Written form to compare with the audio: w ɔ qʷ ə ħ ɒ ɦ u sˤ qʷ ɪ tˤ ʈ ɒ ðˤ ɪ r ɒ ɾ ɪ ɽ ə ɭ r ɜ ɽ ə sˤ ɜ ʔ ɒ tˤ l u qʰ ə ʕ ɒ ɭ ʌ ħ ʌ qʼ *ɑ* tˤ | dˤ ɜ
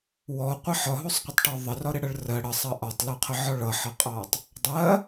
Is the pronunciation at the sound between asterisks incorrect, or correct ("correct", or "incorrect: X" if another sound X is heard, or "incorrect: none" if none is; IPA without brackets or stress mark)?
correct